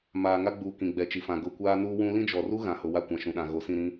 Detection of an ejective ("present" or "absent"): absent